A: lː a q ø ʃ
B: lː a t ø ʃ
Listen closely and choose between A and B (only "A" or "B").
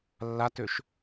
B